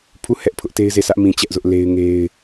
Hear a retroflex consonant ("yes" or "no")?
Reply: no